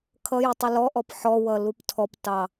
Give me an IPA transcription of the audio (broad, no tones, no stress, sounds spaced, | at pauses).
kʰ ʌ j ɪ tˤ ʊ l ɔ ʔ ɔ p ħ ɔ w ʌ l u p tʰ ɔ p t ɑ